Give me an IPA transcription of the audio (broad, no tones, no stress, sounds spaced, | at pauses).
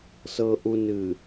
s ɤ ʔ u n ɨ